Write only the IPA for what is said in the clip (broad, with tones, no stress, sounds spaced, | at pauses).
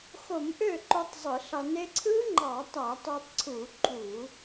x o˧˩˧ m ʔ ø˥˩ ǃ o˦˥ tˤ zˤ ɯ˧˩˧ ɬ ɑ˧ n e˧ ǀʰ ɯ˦˥ ŋ͡ǃ ɑ˧˩˧ tˤ æ˧˩˧ tˤ o˧ tˤ ǀʰ u˧˩˧ ǃʼ u˧˩˧